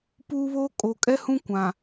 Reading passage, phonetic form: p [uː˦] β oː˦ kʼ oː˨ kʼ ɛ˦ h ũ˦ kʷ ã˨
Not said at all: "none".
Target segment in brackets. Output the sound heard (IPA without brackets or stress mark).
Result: uː˦